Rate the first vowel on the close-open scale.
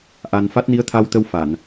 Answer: open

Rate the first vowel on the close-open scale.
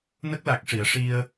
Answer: mid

